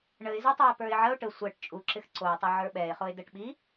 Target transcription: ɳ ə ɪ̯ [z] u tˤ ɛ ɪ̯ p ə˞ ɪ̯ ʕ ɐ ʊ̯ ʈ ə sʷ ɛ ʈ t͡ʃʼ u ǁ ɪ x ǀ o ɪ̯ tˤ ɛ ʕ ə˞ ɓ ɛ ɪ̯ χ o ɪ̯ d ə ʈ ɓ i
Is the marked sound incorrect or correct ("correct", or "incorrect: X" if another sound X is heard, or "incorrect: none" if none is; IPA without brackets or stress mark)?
correct